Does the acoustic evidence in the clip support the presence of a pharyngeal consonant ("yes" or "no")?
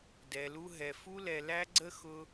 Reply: no